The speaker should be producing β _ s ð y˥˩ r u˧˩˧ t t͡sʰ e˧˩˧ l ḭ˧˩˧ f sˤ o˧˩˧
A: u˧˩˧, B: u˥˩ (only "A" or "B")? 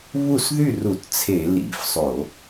B